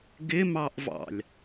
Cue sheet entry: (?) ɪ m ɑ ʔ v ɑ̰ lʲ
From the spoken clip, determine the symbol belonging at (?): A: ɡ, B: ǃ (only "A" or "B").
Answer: A